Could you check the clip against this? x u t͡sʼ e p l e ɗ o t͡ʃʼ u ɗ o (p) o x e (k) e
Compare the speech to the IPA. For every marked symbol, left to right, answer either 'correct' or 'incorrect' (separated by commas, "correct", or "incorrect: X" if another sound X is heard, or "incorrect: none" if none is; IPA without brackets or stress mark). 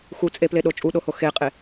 incorrect: h, incorrect: qʼ